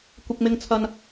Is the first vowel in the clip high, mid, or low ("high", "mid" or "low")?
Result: high